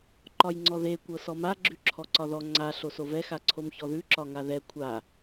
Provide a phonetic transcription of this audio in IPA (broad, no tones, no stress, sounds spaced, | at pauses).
ǃ ɒ j ŋ͡ǀ ɔ ð e kʷ ɤ s ɔ m a ɡ͡ǁ ʉ ǁʰ ɔ ǀ ɒ ð ɔ ŋ͡ǀ a ɬ o s o v ɛ x a ǀʰ o m ç ɔ ð ʉ ǁ ɒ ŋ a ð ɛ kʷʰ a